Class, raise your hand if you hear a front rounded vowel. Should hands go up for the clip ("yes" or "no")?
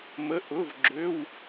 yes